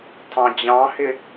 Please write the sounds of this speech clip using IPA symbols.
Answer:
tʰ ɑ̃ d͡ʑ ɑ̃ h ɪ

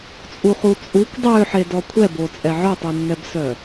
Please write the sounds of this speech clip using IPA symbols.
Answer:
t͡sʼ u χ u t͡sʼ u kʷ dˤ ø ħ e d ɔ kʷʰ ɛ b o t͡sʼ ɛ ʕ œ tˤ u nː ɛ b s œ

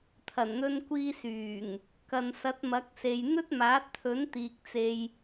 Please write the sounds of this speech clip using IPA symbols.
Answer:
t̪ʰ ɐ˨˩ n n̪ ɵ˧ n kʷ iː˧ s yː˨˩ ŋ | k ɐ˨ n s ɐ˨˥ t̚ m ɐ˨˥ k̚ s e˨ j n̪ ɵ˥ t̚ m aː˨˥ t̚ t̪ʰ ɵ˨˥ n t̪ iː˨ k̚ t͡s e˨ j

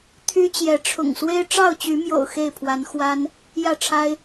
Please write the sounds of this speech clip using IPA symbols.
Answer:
t̪ʰ y˦ t͡ɕ j ɛ˨˦ ʈ͡ʂʰ ʊ̰˨˩ ŋ s w e˦ ɪ̯ ʈ͡ʂ ɑ˥˨ ʊ̯ t͡ɕ y˨˦ m j o̰˨˩ ʊ̯ x e˥˨ ɪ̯ pʰ w a˨˦ n x w a˦ n | j ä˥˨ ʈ͡ʂʰ a˦ ɪ̯

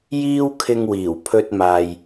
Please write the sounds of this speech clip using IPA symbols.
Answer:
j iː˥ w kʰ ɪ˧ ŋ w iː˨˩ w pʰ ɵ˧ t̚ m aː˨ j

